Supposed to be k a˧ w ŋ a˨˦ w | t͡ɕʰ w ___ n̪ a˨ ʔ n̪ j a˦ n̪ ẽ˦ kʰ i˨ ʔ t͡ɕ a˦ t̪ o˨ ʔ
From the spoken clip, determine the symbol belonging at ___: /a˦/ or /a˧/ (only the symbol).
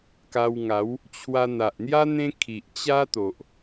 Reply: a˧